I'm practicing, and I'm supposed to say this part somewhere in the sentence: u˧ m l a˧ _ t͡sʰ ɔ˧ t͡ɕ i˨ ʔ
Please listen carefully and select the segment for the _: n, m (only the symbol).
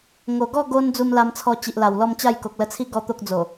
m